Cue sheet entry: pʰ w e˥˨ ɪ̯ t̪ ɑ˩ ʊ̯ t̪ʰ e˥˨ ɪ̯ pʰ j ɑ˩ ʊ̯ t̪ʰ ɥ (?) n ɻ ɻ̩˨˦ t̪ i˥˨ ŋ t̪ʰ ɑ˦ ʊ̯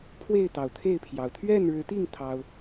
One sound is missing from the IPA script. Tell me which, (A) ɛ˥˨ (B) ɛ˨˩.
A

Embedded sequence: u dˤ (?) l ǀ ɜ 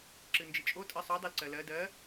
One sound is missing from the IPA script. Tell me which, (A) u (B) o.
B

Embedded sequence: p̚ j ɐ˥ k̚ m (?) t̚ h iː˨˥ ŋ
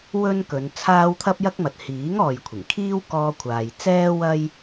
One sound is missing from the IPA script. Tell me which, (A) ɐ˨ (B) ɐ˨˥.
A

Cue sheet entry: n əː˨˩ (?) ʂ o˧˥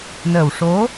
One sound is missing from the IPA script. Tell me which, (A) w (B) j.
A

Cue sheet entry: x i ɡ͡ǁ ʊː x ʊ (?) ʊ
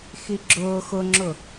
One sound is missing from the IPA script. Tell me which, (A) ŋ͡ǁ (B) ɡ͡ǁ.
A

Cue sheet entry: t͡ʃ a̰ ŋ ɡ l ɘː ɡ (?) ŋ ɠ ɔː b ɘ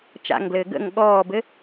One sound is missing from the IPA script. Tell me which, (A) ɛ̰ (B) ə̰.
B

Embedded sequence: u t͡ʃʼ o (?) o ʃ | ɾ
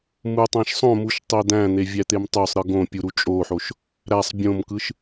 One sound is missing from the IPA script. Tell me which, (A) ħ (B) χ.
A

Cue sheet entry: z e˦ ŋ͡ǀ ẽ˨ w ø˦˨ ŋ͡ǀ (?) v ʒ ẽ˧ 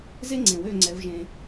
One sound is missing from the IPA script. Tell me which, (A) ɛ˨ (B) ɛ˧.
B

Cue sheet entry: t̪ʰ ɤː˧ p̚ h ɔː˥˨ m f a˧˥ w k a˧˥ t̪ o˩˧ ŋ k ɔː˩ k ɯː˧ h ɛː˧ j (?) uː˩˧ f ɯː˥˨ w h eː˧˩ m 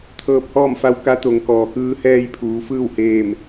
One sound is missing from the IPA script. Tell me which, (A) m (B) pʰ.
B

